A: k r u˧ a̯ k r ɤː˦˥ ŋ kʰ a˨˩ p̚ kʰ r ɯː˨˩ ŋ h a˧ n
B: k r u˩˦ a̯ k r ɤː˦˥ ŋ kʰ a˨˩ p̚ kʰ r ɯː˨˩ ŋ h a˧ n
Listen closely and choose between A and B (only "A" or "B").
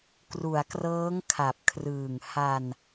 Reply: B